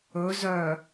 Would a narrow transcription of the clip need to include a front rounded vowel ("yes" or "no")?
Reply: yes